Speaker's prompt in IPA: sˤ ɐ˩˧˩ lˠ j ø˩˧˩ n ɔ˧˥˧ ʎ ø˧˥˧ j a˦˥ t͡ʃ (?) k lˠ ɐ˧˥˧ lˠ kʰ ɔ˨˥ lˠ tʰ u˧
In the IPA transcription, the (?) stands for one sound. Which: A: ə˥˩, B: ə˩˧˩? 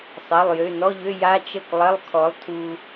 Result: A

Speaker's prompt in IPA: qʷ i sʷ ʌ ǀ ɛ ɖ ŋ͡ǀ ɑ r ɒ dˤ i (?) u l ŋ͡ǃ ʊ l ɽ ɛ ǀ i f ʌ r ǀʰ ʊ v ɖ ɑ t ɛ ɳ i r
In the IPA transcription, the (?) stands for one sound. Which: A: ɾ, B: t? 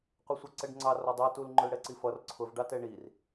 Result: B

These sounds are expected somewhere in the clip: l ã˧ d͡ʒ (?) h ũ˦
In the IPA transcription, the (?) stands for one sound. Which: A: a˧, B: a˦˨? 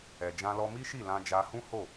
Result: A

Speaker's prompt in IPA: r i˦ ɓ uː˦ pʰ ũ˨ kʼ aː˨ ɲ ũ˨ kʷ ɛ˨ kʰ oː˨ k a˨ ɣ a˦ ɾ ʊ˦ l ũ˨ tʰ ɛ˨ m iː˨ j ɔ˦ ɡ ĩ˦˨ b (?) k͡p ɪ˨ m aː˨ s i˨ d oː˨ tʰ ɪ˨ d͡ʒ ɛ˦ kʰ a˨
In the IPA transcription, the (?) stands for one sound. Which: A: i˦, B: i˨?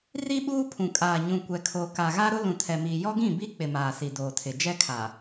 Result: A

